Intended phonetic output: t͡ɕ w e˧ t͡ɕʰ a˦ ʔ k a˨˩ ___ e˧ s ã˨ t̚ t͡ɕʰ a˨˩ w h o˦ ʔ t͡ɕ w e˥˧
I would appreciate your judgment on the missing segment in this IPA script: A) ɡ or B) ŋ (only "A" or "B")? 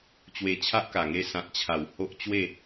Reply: B